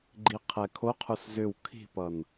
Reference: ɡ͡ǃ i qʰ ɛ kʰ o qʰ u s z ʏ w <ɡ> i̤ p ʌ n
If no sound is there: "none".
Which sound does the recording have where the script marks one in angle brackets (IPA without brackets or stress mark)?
kʰ